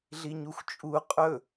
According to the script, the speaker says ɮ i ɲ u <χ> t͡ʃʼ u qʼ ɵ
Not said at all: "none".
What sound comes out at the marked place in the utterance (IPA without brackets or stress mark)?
xʷ